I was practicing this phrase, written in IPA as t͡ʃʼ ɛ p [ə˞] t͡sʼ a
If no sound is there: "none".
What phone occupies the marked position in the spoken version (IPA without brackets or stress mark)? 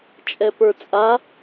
ə˞